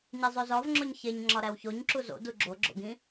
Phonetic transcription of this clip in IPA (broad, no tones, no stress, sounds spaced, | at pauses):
ɲ e zˤ o z ɒ v ŋ͡ǁ o ɲ ç e ɲ ŋ͡ǁ ɒ ɾ æ w ç o ɲ ǁ u z o̰ d u ɡ͡ǁ o ɡ͡ǁ o̰ ɡ ĩ